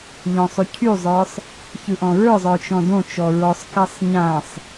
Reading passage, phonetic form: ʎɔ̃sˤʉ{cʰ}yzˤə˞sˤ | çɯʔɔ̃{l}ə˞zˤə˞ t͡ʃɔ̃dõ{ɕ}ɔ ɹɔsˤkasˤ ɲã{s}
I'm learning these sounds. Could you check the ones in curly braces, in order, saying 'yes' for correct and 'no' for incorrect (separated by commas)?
yes, no, no, no